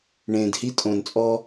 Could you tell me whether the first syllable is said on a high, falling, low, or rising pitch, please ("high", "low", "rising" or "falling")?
low